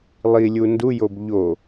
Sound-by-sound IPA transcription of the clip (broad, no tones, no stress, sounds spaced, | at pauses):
lˠ i lʲ u n d u j o b ʎ o